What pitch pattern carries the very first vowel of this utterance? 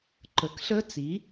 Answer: rising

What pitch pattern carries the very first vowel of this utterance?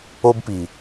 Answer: high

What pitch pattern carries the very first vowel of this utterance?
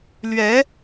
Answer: rising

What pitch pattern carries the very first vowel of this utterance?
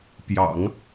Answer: low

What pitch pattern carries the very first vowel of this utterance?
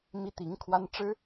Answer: high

